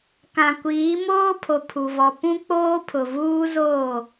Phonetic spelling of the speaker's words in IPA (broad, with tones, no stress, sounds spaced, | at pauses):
k ã˨ kʷ iː˨˦ m oː˦ pʰ o˨ pʰ u˨ v ɔ˨ p ũ˦ k͡p oː˦ pʰ ʊ˨ v uː˦ z oː˦˨